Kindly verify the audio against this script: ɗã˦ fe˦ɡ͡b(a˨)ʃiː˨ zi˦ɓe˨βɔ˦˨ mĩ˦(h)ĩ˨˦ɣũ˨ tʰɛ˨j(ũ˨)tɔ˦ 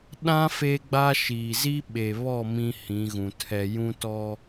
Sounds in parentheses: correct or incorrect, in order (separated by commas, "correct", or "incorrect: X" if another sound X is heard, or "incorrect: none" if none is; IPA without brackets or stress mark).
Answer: incorrect: a˦, correct, incorrect: ũ˦